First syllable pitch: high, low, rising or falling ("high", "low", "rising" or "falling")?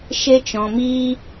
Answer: high